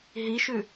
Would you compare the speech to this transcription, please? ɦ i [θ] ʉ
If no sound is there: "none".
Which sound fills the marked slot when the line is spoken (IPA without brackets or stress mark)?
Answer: ʃ